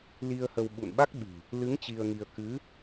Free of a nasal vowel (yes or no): yes